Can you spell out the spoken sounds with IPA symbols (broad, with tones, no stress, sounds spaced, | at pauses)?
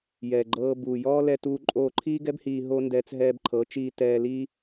j ɛː˨ ɡ͡ǃ ɤː˧ b uː˨ j ɔː˦ l ɛ˧ t uː˧ ǃʼ oː˧ ǃʰ iː˦ ɡ ɛ˦ b h iː˧ ɦ o˦ n d ɛː˧ t͡s ɦ ɛː˧ b ǃʰ ɤ˨˦ t͡ʃ iː˧ t ɛː˧ l iː˧